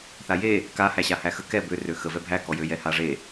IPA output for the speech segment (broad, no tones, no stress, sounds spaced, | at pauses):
θ a j e | k a h æ ɕ a h æ x ə k ɛ b ø r ø x ə v ɛ bʱ æ k ɔ j ø j ɛ h a ʐ e